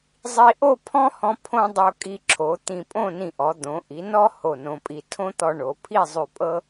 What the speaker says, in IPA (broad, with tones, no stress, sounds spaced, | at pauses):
zˤ i˧ ʔ o˥˧ pʰ ɔ̃˥ h ɔ̃˧ pʰ õ˥ dˤ o˧ kʼ i˧ ǁʰ o˩˧ t̪ ĩ˧˩ pʼ õ˥˧ n ĩ˧˩ ʔ ɔ˩˧ d̪ õ˩˧ ʔ i˩˧ n ɔ˥ h o˧˩ n õ˧ pʼ i˧ tʰ õ˥ t̪ ɔ˧ ɳ o˩˧ pʰ i˥˧ zˤ ʉ˧˩ pʼ ɤ˥